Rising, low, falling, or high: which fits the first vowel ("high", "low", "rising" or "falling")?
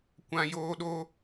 high